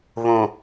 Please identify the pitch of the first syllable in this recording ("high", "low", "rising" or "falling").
low